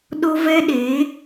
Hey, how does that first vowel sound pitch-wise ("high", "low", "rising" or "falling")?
high